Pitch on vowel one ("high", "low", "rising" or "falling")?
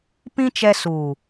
high